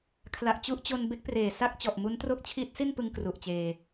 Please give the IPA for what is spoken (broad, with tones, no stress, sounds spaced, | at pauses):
kʰ l a˨˩ ʔ t͡ɕ u˥˩ ʔ t͡ɕ o˧ n b e˦˥ k̚ p r eː˨˩ s a˥˩ k̚ t͡ɕ ɔ˨˩ ʔ m u˦˥ n t r o˦˥ k̚ t͡ɕʰ iː˦˥ t̚ s i˥˩ n p ɯ˧ ŋ k r u˨˩ ʔ t͡ɕ eː˧